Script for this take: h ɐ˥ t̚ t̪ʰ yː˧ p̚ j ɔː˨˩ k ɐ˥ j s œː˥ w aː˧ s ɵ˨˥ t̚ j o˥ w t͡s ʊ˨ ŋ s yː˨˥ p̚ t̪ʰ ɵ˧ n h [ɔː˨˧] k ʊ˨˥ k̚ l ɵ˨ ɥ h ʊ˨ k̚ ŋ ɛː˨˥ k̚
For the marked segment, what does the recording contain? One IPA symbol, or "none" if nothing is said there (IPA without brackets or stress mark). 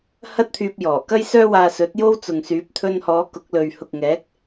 ɔː˨˧